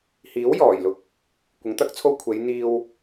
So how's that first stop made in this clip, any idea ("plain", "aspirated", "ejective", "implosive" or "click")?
plain